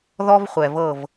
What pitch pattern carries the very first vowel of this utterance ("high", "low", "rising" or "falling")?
high